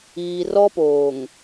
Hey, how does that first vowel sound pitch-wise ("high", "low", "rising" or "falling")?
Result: low